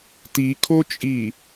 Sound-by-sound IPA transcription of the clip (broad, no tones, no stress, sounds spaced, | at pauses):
t i kʰ o t͡ʃʼ i